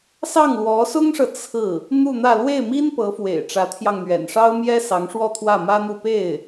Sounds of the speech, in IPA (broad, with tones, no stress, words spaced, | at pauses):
sɑ˥˩ŋlwɔ˧˥sʊ˥ŋʂɤ˨ t͡sʰɹ̩˥˩ | n̪u˥˧n̪ä˥˧ lwe˥˩ɪ̯mi˥n pɤ˧˥fwḛ˨˩ɪ̯ ʈ͡ʂä˧˥t̪ʰjɑ˧ŋ n̪ɥɛ̰˨˩nʂɑ˥ʊ̯mjɛ˥ sɑ˧˥ŋʂwɔ˥˧ t̪ʰwä˥˩mä˥n̪u˥˧ pe˥˩ɪ̯